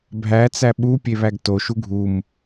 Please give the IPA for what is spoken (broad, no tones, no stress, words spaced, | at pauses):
bʱæt͡sæ ɓu pʲeβæɡto ʃuɡʱum